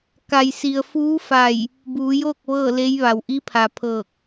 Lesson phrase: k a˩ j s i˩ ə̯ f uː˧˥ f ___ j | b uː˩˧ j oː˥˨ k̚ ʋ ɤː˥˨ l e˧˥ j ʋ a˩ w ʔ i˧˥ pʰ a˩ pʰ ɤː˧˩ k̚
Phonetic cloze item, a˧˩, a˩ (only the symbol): a˧˩